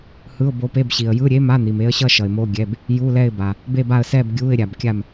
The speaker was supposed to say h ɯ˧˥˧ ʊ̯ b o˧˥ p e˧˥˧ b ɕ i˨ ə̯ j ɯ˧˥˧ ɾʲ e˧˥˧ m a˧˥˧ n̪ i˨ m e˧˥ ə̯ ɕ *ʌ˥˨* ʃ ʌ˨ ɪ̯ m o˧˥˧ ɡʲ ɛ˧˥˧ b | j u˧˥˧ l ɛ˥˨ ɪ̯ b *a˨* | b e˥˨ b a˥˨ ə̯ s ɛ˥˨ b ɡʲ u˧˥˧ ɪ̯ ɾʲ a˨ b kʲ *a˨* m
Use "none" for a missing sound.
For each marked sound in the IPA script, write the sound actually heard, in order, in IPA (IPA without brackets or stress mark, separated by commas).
ʌ˥˨, a˨, a˥˨